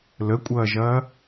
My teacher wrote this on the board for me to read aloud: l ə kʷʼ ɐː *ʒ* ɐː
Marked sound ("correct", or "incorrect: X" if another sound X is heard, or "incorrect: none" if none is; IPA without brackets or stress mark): correct